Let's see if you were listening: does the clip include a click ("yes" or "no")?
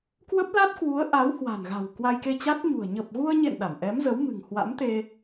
no